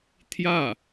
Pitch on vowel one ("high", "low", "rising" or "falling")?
falling